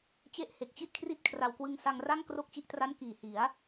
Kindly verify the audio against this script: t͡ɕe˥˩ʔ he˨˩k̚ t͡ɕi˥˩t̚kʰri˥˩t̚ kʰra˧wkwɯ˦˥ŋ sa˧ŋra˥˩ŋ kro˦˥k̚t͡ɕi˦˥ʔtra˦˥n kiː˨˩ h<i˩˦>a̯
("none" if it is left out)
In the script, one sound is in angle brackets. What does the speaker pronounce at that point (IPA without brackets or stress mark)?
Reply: i˩˦